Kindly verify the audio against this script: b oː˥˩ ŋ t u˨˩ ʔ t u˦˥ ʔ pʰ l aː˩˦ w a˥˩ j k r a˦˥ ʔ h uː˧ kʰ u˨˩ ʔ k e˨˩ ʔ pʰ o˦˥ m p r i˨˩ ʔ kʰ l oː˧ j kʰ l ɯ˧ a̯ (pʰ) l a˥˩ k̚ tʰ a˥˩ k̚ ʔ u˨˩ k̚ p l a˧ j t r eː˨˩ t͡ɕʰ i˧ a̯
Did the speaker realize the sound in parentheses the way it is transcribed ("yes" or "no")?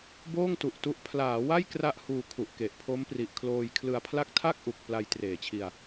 yes